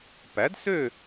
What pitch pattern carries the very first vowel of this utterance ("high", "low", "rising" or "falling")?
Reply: rising